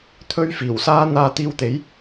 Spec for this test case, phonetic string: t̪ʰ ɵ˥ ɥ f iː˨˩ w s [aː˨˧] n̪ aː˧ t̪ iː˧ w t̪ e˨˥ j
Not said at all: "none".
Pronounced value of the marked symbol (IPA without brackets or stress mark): aː˥